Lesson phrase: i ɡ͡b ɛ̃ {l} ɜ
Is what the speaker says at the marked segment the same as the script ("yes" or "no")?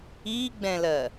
yes